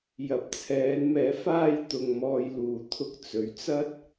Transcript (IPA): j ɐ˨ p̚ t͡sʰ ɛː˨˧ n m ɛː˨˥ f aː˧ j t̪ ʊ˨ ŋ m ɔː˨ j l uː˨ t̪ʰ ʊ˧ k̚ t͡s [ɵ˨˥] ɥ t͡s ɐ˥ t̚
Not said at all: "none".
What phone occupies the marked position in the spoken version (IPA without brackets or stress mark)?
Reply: ɵ˨˥